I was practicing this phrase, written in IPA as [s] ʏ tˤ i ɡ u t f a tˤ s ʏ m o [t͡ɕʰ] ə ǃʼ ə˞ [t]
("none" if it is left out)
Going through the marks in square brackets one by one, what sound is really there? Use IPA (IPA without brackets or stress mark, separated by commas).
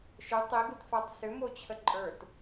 ʃ, t͡ɕʰ, t